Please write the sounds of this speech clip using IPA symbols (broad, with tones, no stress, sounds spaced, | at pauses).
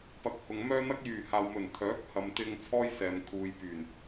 p ɐ˨˥ k̚ h ʊ˨ ŋ m œː˥ n̪ ɐ˥ k̚ j yː˨˩ h aː˨ w m ɵ˨˩ n t̪ʰ œː˨˥ k̚ h ɐ˨ m t̪ ɪ˧ ŋ t͡sʰ ɔː˥ j s ɛː˨ m kʰ uː˨ j p yː˨˩ n